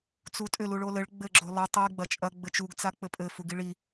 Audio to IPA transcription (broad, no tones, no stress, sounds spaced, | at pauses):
t͡s u tʼ ʏ l u ɭ o l ɘ ɭ ɡ͡b ɘ ɡ͡ǁ o lˠ ɘ tˤ i ɡ͡b ɐ t͡ʃʼ ɐ ɡ͡b ɘ t͡ʃ u ɡ t͡s a k͡p ɘ pʼ ɘ f u ɡ i ɭ i